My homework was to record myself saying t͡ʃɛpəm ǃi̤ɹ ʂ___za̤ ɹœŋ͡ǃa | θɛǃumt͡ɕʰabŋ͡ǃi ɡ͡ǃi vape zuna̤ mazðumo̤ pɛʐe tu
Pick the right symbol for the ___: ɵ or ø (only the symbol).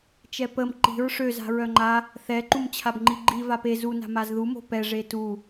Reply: ø